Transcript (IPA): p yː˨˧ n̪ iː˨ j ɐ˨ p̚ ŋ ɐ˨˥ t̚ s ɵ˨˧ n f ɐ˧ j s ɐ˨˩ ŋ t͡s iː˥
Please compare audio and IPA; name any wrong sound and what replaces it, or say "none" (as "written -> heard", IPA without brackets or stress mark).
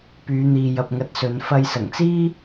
none